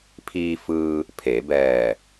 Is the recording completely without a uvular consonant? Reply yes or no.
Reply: yes